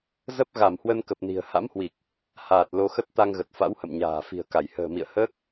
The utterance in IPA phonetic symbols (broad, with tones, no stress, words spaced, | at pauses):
zə˦˥p̚ɣa˧˩m hwə˧nkə˨˩p̚ni̤˨˩ə̯ ha̰˧˥mhwi˨˩k̚ | haː˨˩t̚ lo˧xə˦˥t̚ t̪a˧ŋɣə˨˩t̚ fa̰˧˥whə̰˧˨mɲa̤ː˨˩ fi̤˨˩ə̯ka˧˩j hə̤ː˨˩mḭ˧˨ə̯həː˦˥k̚